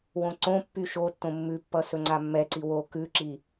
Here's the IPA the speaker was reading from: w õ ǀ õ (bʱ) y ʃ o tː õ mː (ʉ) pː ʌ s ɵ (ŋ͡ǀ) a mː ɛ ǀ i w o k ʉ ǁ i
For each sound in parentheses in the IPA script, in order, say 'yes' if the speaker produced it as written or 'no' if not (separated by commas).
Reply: no, yes, yes